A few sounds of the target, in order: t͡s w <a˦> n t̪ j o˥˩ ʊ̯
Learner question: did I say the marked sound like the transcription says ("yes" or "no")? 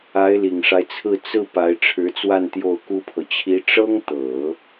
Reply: no